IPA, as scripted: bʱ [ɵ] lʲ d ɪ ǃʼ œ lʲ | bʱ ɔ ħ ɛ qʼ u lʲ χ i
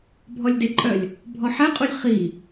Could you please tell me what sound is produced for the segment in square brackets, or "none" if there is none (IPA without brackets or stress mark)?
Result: ɔ